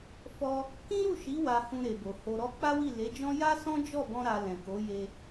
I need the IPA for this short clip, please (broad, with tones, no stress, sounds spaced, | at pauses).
f ɔ˧ | k ĩ˦ ɾ u˦˨ ʃ i˨˦ w a˧ h ũ˧ ɾ e˨ b o˨ h o˧ ɾ ɔ˦ k͡p a˦ w i˦˨ l e˨˦ d͡ʒ ɔ̃˦ j a˦ s ɔ̃˦ d͡ʒ ɔ˦˨ b ɔ̃˧ ɾ a˧ l ɛ̃˨ k o˨˦ j e˧